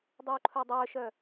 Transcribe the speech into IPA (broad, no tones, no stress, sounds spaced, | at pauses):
dˤ uː ǃʰ œ dˤ œː ʃ œ